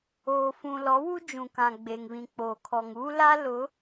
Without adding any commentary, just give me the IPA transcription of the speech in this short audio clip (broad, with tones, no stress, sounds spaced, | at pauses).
oː˨ f ũ˨ l ɔ˨˦ w u˦ d͡ʒ ũ˨ k ã˨ ɡ͡b e˨ ŋ β ĩ˨ k͡p oː˨ kʰ ɔ˨ ŋ u˦ l a˦ l ʊ˨˦